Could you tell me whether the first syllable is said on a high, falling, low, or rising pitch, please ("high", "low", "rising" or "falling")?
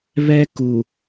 high